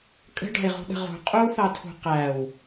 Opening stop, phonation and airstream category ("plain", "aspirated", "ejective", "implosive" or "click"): ejective